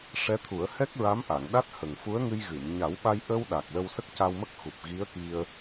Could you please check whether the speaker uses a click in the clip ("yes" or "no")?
no